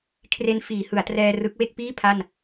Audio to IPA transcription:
kʰ r e˦˥ n f iː˩˦ h ɯ˩˦ a̯ t r ɛː˧ r ɯ˦˥ k̚ w e˥˩ k̚ p iː˥˩ pʰ a˥˩ n

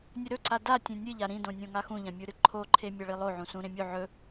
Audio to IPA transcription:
nʲ ɵ ɾ ɵ ǀ a d a tʲ ẽ nʲ ɨ ʎ a ɾ ĩ d õ nʲ õ ŋ a x ũ ʎ ã mʲ u ɾ ɨ ǃʰ o ǃʰ e mʲ a ɭ i lˠ o ʕ ũ s ũ ɾ ẽ mʲ u ʕ ɵ

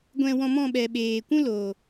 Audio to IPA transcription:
ɡʷ ɛ̃˧ w ɔ̃˧ m ɔ̃˦˨ ɓ ɛ˨ ɓ eː˨ kʷ ũ˦ l oː˨

